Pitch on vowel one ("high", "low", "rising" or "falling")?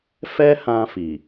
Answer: high